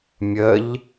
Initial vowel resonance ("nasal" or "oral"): oral